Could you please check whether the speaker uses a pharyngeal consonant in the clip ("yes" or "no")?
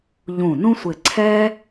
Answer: no